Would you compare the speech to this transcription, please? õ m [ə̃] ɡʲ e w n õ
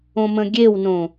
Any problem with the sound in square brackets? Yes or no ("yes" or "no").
no